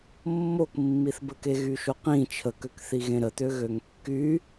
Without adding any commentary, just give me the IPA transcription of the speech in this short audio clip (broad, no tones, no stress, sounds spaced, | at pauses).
mː o k mː i θ b ə k e ɣ y ʃ o q ĩ t͡ʃʰ ə k ø k θ i ɣ ẽ ɾ ə t̪ ø ɣ ø ŋ kː y